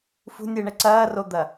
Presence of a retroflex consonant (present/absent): present